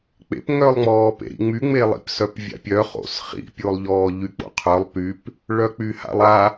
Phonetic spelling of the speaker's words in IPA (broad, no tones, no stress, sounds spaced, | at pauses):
k͡p ḛ p ŋ œ lˠ ŋ͡m ɔː p ḛ ɾ ḭ ŋ͡m y ŋ͡m e lˠ ḭ p s œ p vʲ a̰ pʲ œ χ o̰ s χ ḭ pʲ o lˠ ʎ ɔː ʎ y k͡p o̰ qʰ œ lˠ p y p | ɭ œ k͡p y h a̰ lˠ a